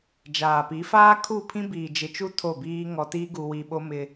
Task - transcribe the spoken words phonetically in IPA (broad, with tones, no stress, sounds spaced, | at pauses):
d͡ʒ aː˨ p i˨˦ f aː˦ kʰ u˦˨ pʰ ĩ˦ b iː˨ d͡ʒ ɪ˨ t͡ʃ u˦ tʰ o˦˨ b iː˦ ŋ ɔ˨ t iː˦ ɡ u˨ w i˨ ɓ o˦ m ɪ˦